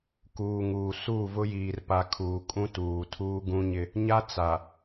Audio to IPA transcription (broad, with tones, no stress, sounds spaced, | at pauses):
k uː˨ ŋ uː˨ s uː˦˨ v ʊ˦ j iː˨ r p a˨ kʰ uː˨ kʼ ũ˦ t uː˨ tʰ uː˦ ɡ ũ˦ ɲ ɪ˦ | ɲ a˦ t͡s a˨